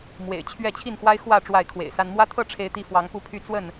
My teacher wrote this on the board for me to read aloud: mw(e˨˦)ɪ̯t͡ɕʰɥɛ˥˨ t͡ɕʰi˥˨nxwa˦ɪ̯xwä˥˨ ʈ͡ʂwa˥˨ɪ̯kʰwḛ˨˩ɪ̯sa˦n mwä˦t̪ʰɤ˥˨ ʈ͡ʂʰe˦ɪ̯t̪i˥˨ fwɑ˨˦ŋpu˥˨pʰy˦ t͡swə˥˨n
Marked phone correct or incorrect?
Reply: incorrect